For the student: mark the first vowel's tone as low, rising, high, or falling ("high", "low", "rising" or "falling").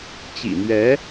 low